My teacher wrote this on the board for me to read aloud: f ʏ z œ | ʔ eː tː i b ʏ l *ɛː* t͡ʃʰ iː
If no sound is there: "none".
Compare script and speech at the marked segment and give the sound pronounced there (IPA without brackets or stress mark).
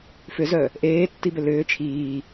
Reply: ʏː